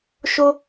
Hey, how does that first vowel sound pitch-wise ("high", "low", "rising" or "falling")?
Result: high